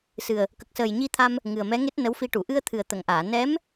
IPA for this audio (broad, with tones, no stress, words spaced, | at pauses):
sɨ˨˩ə̯ | kə˨˩k̚səː˨˩jɲi˧t̪ʰa˧m | ŋɨ˨˩ə̯mɛ˧˥ŋe˦˥t̚ nə˧˥wfi˧ʈu˨˩˨ ʔɨ˧ə̯t̪ʰɨ˨˩ə̯ t̪ə˨˩˨ŋʔaː˨˩˨ nɛ˧˥m